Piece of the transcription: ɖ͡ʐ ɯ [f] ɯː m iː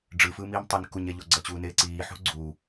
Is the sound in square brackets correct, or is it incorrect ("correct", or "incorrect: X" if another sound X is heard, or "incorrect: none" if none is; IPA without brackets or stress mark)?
correct